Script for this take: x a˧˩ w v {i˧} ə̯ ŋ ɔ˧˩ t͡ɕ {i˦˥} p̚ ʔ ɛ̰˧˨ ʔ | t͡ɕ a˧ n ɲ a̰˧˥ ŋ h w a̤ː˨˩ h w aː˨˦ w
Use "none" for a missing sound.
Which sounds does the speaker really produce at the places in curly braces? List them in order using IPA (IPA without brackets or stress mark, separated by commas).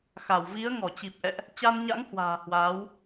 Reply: i˨˦, i˨˩